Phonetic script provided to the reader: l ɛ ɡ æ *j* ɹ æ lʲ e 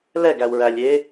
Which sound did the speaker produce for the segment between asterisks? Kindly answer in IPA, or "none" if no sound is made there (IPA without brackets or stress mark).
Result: w